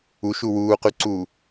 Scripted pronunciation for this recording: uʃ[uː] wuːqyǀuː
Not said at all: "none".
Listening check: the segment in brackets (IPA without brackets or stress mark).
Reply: u